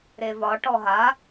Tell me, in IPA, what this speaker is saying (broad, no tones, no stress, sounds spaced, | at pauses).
ɾ e v ɒ ʈ ɔ ɦ a